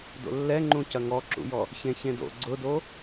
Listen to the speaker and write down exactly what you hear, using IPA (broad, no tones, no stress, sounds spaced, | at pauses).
d o̰ lː ɛ ŋ͡ǃ ũ c ɐ ŋ ɔ ǁ ṵ j ɔ | ç ẽ ç ẽ d o̰ ɡ͡ǀ ʊ d o